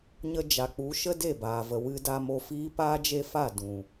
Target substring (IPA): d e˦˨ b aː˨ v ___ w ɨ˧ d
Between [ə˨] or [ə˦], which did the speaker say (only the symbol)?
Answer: ə˨